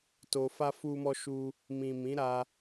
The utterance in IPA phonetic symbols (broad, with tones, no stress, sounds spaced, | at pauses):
t o˨ f a˧ f u˧ m ɔ˧ ʃ u˧ | m ĩ˨ m ĩ˨˦ ɾ a˧